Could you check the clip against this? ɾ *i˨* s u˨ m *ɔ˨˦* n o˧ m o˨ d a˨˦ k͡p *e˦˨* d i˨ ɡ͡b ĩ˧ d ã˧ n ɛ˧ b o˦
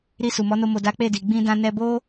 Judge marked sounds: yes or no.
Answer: no, yes, yes

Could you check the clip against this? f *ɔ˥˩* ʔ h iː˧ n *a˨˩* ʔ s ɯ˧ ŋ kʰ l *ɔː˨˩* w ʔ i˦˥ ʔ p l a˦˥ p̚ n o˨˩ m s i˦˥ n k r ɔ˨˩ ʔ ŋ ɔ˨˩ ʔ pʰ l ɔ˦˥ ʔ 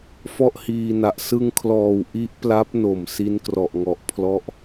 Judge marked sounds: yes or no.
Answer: yes, yes, yes

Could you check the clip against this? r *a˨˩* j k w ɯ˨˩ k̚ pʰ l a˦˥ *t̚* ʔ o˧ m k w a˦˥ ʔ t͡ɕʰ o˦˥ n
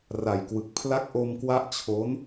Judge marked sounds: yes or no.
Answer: yes, no

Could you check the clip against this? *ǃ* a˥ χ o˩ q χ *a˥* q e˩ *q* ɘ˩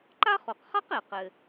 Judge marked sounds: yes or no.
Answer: yes, yes, yes

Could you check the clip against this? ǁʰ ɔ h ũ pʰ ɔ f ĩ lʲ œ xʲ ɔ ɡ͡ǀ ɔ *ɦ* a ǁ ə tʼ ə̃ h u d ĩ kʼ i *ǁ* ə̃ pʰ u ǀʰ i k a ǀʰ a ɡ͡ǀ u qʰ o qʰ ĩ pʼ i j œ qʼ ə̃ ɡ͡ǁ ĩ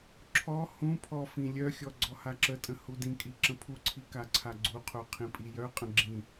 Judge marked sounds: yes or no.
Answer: no, yes

